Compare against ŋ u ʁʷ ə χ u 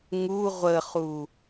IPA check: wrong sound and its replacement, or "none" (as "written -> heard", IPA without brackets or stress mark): none